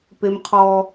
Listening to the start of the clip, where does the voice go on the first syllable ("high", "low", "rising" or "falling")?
high